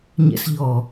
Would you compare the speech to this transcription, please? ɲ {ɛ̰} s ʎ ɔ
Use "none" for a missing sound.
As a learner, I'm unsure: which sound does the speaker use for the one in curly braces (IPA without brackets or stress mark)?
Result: ɛ̰